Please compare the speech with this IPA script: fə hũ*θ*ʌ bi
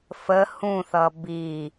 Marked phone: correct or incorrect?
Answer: correct